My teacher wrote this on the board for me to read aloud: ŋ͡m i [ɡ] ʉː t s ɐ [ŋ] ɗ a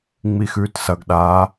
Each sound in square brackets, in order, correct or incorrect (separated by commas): incorrect, incorrect